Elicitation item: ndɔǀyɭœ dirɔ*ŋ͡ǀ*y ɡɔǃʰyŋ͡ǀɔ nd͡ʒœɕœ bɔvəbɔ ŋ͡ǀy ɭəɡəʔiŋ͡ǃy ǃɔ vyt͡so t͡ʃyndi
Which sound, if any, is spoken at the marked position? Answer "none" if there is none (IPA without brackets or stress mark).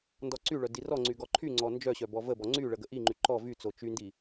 ŋ͡ǀ